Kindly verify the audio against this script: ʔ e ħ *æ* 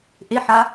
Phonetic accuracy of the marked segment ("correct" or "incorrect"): incorrect